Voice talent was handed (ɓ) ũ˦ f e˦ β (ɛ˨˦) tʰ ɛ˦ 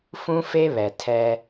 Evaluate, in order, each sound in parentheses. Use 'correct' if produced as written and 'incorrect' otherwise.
incorrect: f, incorrect: ɛ˨

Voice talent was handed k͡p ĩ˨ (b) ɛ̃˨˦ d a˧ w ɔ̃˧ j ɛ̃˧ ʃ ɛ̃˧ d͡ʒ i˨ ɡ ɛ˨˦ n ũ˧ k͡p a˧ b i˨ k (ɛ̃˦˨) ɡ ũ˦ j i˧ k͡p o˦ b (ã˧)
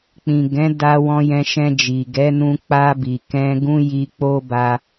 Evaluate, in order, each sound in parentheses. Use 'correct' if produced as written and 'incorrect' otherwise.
incorrect: ɡ, incorrect: ɛ̃˧, incorrect: a˧

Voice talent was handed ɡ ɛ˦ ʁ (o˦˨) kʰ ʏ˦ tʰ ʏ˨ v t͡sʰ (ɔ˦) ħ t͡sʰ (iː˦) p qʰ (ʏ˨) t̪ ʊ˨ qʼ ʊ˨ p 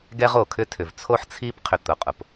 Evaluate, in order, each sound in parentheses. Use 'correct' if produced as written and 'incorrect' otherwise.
correct, incorrect: o˦, correct, correct

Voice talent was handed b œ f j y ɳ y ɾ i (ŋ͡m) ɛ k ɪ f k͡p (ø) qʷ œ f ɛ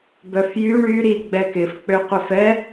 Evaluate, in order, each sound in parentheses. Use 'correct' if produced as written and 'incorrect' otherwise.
incorrect: ɡ͡b, correct

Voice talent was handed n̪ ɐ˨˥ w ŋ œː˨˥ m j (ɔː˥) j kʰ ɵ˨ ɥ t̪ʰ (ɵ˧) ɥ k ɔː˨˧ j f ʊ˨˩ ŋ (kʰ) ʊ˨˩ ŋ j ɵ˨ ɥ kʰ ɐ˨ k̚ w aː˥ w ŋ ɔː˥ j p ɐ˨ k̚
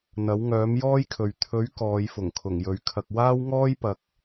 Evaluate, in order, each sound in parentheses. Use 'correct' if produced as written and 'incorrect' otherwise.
correct, incorrect: ɵ˨˥, correct

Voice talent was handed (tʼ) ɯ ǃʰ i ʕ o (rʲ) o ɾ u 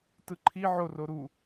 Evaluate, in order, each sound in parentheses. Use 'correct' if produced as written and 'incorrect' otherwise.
incorrect: t, incorrect: r

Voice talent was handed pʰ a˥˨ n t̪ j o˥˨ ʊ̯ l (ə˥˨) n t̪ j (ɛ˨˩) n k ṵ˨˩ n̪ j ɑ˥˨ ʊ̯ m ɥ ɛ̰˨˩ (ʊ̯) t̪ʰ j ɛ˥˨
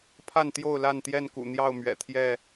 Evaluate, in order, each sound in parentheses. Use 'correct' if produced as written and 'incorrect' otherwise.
incorrect: a˥˨, incorrect: ɛ˥˨, incorrect: none

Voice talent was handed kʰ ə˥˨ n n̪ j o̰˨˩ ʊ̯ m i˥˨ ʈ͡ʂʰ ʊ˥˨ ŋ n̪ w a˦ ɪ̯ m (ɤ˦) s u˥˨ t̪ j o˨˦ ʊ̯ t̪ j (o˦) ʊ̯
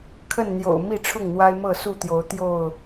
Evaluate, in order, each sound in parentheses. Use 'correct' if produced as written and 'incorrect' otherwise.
incorrect: ɤ˥˨, incorrect: o˥˨

